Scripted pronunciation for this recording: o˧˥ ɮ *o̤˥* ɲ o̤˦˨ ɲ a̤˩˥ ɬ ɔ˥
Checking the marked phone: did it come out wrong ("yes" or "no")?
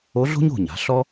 no